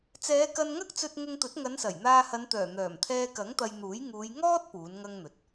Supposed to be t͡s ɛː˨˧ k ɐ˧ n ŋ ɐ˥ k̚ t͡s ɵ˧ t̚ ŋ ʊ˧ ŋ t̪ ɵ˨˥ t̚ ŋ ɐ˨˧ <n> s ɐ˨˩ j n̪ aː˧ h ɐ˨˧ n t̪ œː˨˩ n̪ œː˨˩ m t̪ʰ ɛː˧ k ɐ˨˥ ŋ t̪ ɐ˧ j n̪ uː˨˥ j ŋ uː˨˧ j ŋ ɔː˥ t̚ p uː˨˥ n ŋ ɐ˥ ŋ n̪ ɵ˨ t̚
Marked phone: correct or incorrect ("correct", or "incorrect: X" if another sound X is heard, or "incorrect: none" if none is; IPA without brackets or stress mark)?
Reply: correct